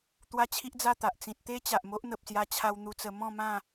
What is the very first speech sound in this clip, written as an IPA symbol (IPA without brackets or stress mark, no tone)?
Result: t̪